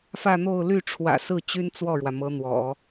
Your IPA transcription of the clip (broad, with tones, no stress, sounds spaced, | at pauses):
f ä˥˧ n̪ o˥˧ ʊ̯ l y˥˩ ʈ͡ʂʰ w ä̰˨˩ s ɹ̩˥˩ t͡ɕ y˥ n t͡s w ɔ˥˩ ɻ w ä˩ m ɤ˧˥ n̪ w ɔ̰˨˩˦